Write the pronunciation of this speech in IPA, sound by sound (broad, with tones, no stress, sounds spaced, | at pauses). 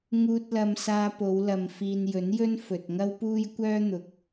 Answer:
ŋ uː˧ t̚ l ɐ˧ m s aː˧ p o˨˧ w l ɐ˨ m f iː˨ n j ɵ˨˥ n j ɵ˥ n f ɵ˨ t̚ ŋ ɐ˥ w p uː˥ j kʷ œː˥ n̪ ʊ˨ k̚